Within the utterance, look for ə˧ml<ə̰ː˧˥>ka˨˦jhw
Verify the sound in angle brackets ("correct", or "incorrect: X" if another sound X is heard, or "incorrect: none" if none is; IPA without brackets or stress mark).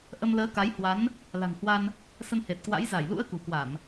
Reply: incorrect: əː˨˦